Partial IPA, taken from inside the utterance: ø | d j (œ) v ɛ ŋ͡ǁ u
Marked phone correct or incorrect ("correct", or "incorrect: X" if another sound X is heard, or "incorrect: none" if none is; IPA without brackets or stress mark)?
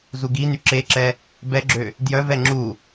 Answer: correct